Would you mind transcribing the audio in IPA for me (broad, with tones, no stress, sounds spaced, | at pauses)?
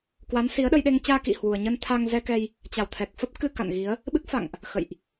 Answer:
k w a˨˦ n s i˨˦ ə̯ ɗ ə˧ j ɗ e˧ ŋ t͡ɕ aː˧ k ḭ˧˨ h w u˨˩ ə̯ ɲ ə˧ n t̪ʰ a˧ ŋ z ɛ˧ k ɛ˧ j | t͡ɕ a˧˩ w t̪ʰ ɛ˨˩ k̚ f ə˦˥ p̚ k ɨ˧ k a̰˧˨ n ɣ i˨˦ ə̯ | ɓ ɨ˦˥ k̚ f a̰˧˨ ŋ ʔ | x ə̰˧˨ j ʔ